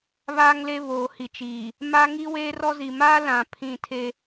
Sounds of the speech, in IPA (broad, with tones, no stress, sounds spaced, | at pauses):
β aː˦ ŋ l e˦ β oː˨ h i˨ t͡ʃ iː˨ | m a˦ ŋ i˦ w eː˦ r ɔ˦ z i˨ m aː˦ l ã˨ pʰ ĩ˦˨ tʰ e˦